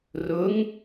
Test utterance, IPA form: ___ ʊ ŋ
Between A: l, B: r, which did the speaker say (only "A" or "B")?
B